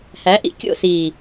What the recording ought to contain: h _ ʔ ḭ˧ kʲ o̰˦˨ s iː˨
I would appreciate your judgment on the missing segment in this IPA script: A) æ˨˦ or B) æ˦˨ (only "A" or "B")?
A